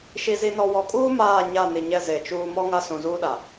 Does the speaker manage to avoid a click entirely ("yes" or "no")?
yes